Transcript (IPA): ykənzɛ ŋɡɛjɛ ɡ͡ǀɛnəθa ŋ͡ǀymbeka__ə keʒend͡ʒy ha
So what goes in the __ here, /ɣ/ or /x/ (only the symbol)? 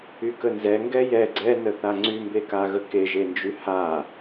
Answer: ɣ